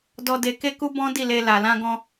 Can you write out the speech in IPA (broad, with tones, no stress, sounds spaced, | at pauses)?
d ɔ˧ d e˧ k e˦ k u˦ b ɔ̃˦ d i˦˨ l e˧ l a˨ l ã˧ ɡ ɔ̃˧